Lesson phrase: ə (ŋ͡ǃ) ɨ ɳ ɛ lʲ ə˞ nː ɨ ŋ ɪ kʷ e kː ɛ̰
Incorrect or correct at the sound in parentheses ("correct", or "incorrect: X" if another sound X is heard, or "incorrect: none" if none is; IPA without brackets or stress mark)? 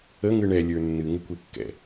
incorrect: ŋ